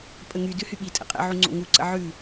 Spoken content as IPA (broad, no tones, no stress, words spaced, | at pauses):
pʼəŋydʉ hyɓitʼə̰ qʼə̰ʕu ŋ͡ǀo̰ŋuǀə̰ ʕʉ